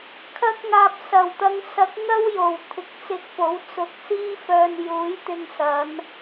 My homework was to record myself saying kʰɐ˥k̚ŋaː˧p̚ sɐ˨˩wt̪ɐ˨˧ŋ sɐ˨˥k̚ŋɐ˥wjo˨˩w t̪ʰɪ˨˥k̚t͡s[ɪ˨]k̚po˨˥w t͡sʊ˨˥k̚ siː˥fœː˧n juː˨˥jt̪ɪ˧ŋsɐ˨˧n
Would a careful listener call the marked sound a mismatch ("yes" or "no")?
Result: yes